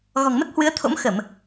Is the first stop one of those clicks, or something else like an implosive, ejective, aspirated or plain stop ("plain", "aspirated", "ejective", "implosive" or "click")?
plain